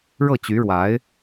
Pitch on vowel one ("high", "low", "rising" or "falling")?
falling